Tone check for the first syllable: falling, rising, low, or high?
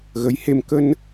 rising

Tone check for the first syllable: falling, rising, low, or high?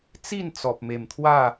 falling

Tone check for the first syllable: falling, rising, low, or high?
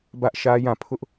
high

